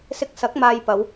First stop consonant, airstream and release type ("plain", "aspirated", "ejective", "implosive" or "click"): plain